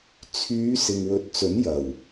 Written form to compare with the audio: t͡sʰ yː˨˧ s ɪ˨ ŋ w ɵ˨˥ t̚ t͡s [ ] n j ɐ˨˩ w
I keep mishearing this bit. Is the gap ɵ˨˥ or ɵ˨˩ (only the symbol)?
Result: ɵ˨˥